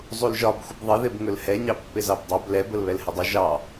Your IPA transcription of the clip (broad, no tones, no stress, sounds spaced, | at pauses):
zˤ u l ʒ ɒ b xʷ ə b ðˤ ɪ ð ɪ b ŋ ɵ l h ɛ ɲ ɑ pː ɪ z ɑ b dˤ ɑ b l ɛ b ə l β ɛ l h ə dˤ ɵ ʒ ɑ